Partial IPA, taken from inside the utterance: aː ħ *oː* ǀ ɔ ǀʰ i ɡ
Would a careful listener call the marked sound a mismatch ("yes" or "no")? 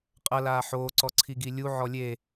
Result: no